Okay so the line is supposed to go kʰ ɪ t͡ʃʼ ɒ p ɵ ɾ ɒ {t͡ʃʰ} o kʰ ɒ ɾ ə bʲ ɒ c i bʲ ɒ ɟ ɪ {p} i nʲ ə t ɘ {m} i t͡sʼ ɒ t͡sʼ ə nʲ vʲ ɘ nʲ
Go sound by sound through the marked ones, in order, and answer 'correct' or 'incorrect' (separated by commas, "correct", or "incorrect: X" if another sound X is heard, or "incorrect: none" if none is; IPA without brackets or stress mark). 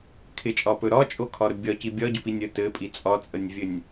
incorrect: t͡ʃʼ, correct, incorrect: pʼ